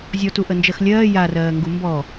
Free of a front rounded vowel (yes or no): yes